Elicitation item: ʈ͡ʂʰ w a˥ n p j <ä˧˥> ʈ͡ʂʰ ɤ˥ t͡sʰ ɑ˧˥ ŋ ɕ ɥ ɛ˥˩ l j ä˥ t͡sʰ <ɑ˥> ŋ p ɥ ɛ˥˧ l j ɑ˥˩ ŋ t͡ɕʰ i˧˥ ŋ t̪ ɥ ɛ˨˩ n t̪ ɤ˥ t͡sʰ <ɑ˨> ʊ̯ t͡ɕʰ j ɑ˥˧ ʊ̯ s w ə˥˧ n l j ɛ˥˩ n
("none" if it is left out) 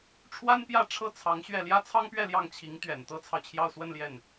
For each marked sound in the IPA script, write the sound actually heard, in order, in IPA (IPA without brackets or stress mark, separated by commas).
ä˥˩, ɑ˥, ɑ˨